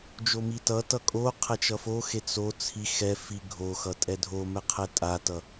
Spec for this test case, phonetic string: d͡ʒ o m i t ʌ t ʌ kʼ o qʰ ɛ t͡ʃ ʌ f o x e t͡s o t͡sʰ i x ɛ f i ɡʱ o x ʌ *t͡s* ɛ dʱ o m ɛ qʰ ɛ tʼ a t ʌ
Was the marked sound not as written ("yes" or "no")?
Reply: yes